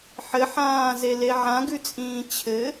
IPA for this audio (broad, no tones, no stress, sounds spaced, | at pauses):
ħ ɘ ħ ãː z e l e ʕ ã ɡ ʉ t͡sʼ ĩː t͡ɕʰ ɘ